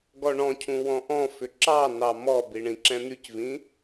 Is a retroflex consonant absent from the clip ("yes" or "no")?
no